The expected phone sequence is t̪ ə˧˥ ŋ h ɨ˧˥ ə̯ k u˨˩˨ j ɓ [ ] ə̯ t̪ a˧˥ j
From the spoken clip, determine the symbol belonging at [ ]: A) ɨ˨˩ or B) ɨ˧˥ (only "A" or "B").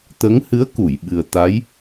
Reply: A